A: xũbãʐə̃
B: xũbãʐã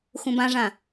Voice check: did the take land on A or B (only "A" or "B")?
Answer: B